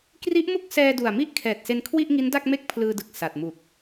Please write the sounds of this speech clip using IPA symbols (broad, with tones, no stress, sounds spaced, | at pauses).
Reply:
k r i˦˥ ʔ m u˥˩ k̚ s ɛː˧ d u˨˩ a̯ m i˥˩ ʔ kʰ ɛː˨˩ t̚ s e˧ n kʰ w i˥˩ ʔ ŋ i˦˥ n d a˥˩ k̚ m e˥˩ k̚ pʰ l ɯː˧ d ɯ˨˩ k̚ s a˨˩ t̚ m u˨˩ k̚